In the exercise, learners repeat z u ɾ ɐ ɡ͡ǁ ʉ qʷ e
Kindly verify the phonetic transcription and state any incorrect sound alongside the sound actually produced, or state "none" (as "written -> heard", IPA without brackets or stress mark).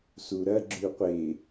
z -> s